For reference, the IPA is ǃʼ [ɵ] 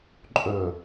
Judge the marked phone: correct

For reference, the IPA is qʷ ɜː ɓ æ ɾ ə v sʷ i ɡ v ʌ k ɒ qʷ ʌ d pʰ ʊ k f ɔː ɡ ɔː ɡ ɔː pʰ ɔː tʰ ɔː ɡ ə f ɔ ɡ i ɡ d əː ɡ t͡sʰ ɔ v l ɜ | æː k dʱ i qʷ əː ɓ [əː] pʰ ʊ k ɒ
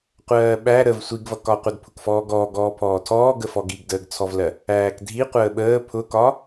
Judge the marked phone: correct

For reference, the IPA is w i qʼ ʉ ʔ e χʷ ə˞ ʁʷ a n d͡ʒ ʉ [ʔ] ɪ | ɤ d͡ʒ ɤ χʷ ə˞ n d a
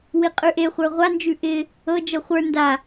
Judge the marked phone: correct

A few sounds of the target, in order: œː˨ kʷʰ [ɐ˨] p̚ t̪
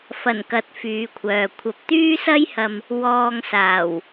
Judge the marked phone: correct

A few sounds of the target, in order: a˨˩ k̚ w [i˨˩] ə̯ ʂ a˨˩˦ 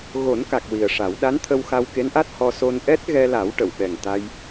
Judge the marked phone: correct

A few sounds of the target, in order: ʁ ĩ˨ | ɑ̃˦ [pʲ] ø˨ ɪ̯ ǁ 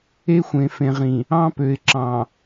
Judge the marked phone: incorrect: p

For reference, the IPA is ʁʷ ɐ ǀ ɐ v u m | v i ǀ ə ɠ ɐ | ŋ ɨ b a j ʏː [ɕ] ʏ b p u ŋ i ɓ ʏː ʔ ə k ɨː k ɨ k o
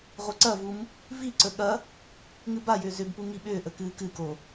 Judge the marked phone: incorrect: z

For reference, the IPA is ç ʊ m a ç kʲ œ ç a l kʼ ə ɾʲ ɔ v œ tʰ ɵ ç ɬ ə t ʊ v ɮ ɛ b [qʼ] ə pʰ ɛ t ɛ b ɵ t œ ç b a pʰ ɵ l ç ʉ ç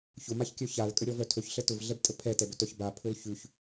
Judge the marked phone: incorrect: tʼ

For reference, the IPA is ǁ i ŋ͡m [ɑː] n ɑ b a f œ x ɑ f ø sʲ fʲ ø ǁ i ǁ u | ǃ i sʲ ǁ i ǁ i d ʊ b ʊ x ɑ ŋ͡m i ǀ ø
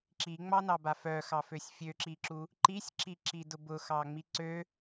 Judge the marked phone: incorrect: ɑ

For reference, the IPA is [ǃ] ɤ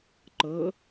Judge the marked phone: correct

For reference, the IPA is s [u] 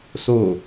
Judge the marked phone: incorrect: o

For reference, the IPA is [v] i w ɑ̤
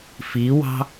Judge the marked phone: incorrect: f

